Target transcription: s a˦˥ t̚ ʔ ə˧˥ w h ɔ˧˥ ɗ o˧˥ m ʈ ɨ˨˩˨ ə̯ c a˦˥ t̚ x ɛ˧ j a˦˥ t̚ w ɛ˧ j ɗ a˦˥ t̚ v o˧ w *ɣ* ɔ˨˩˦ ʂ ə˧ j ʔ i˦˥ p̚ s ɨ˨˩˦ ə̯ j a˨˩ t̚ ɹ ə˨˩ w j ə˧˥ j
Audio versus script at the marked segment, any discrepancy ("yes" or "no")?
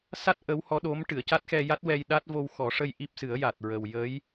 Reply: yes